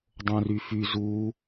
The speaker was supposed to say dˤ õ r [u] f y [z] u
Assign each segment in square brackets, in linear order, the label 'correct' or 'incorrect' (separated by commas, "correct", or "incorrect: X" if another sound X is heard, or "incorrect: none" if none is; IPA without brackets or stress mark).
incorrect: y, correct